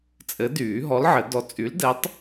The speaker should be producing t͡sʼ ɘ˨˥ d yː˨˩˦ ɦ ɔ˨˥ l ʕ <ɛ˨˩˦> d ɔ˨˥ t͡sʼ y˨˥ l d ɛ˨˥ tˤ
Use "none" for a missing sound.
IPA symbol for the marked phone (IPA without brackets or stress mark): ɘ˨˩˦